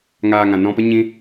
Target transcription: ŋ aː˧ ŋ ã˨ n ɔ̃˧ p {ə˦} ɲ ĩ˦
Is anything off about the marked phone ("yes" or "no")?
no